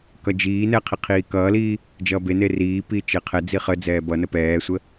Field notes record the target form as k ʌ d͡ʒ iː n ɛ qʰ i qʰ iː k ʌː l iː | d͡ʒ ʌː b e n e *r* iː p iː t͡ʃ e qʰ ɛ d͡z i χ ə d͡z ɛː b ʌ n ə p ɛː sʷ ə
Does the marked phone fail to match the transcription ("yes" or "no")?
no